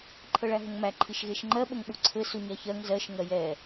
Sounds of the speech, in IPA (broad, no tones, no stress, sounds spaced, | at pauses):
ǃʰ ɤ ɭ æ ɦ ə ŋ m æ ǃʰ i ʃ ɣ e ʃ ŋ͡ǃ ɜ ɓ ə ŋ ɓ u ǀʰ ɘ s u ɲ æ ç ɜ ŋ z ɜ ʃ ŋ ɜ j ɛ